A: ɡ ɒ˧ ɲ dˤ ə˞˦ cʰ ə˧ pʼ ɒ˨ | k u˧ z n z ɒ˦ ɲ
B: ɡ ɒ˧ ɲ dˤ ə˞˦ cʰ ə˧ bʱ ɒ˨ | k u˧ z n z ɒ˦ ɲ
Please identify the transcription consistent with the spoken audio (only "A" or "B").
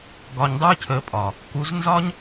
A